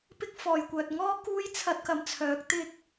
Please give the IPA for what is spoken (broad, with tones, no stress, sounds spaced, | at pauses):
p ɪ˥ k̚ f ɔː˨ j kʷ œː˨ t̚ ŋ ɔː˥ k uː˥ j t͡sʰ ɐ˧ t̚ k ɐ˨ m t͡sʰ œː˨˥ k̚ t̪ ɪ˧ k̚